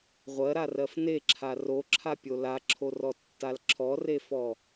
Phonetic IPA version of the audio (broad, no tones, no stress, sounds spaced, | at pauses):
ʁʷ ɜ ɾ a r ɜ f n e ǁʰ a r o ǁʰ a pʲ o l a ǁʰ o r ɔ tː a l ǁʰ ɔ r e f ɔ